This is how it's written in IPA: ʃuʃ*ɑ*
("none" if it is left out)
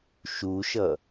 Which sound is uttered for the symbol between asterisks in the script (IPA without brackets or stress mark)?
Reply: ʌ